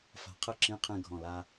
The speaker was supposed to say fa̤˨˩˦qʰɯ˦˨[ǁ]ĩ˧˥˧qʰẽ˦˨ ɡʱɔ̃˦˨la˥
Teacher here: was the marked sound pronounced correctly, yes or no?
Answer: yes